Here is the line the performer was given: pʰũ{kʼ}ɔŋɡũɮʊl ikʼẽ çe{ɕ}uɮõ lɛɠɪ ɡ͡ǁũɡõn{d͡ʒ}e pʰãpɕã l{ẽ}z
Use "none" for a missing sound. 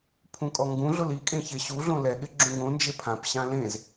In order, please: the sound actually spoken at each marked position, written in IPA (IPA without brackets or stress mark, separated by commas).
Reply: kʼ, ɕ, d͡ʒ, ẽ